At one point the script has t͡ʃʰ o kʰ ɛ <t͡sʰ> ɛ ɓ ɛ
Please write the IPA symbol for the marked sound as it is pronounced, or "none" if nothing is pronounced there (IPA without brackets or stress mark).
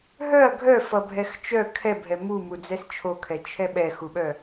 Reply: t͡ʃʰ